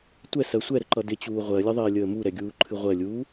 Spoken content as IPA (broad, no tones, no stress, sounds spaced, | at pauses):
tʷ ɛ s ɜ sʷ ɛ ɾ ə ǃ ʌ d ɪ t͡ɕ uː ʁʷ ɜ lʲ ə ðˤ ɪː lʲ əː m u ɾ ɛ ɡʲ uː ǃʰ ɨ ʁʷ ɜ lʲ uː